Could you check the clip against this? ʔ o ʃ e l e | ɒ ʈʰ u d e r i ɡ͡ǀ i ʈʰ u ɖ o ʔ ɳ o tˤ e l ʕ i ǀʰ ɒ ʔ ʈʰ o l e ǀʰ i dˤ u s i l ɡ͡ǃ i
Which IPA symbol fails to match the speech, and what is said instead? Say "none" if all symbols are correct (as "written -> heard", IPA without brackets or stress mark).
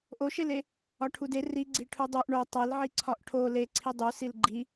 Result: ɖ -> dˤ